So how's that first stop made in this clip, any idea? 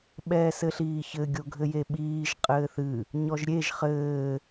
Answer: implosive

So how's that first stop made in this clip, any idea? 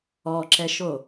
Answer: click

